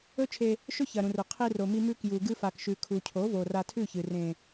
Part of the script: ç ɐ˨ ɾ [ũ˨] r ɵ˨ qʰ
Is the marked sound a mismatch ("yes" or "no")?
no